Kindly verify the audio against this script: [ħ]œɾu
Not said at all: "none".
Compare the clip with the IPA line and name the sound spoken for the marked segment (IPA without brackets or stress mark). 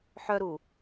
ħ